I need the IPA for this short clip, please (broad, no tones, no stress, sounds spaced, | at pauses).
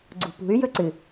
ɡ͡ǀ ṳ p ṳ y̯ j ɵ ǀ ɨ